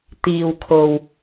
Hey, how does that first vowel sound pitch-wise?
low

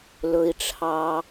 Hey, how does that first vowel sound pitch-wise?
low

